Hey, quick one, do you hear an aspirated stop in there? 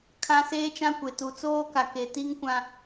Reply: yes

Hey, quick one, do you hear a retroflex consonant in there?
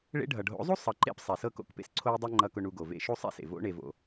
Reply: yes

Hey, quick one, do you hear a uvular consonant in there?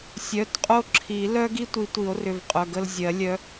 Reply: yes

